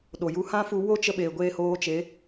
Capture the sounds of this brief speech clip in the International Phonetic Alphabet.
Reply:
ɗo˨ ju˧ hã˦fu˧ wo˦t͡ʃə˧ ɓeː˨ɡʷeː˧hoː˧t͡ʃe˨˦

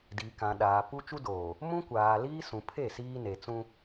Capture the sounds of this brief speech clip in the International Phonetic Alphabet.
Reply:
diː˨kã˨ɗaː˨pu˦ t͡ʃu˦doː˨ | mũ˦kʷaː˨liː˦ sũ˨pʰe˦˨ siː˦ne˨t͡sũ˦

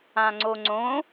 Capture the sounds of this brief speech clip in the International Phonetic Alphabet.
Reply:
ãŋ͡ǀoŋ͡ǀõ

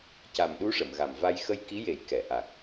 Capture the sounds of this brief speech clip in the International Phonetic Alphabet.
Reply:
ca˨˩mɗu˧˥ʂə˨˩˨m ɣa˨˩mva˧j xə˧jki˧˥je˨˩˦j kɛ˨˩˨ʔa˨˩k̚

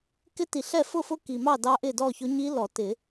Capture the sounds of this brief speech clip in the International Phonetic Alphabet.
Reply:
kɪ˦˥ti˨ɬɛ˥˨ fʊ˥˨fʊ˦˥ ki˨mɑ˥˨ dɑ˦˥ʔɪ˥˨dɔ˥˨çʊ˦˥ ɲi˦˥ lɔ˨˩˦tɪ˨˩˦

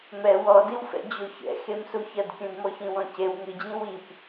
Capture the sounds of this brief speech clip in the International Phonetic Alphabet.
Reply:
mɛ wɔdiwfɛ̰ d͡ʑoçɛ̰ xemsuçɐdkʲũd mɔçĩwɔ̃cew ŋɨd͡ʑĩ wip

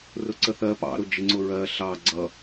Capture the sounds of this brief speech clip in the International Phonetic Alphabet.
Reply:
rʊǀəθɜ pɑ̰ ɾʊd͡ʒɪ ŋ͡ǀʊɹɜ ɬɑ ɡ͡ǀʌ

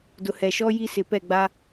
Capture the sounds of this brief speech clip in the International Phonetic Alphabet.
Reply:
dʊ˨hɛ˨ʃɔ˦ ji˦sɪ˨ pɛ˦˨ɡ͡ba˦

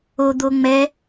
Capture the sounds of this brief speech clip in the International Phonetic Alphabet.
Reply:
o d̪oŋ͡mɛ

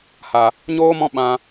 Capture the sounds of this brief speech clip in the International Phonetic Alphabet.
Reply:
ha˨ | ɲoː˦ mɔ̃˦ ɓã˧

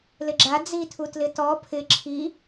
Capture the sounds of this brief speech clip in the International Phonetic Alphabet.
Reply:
lɪɡ͡ǁa d͡zitʰu tlɪtɔ pʰɪ ǁʰi

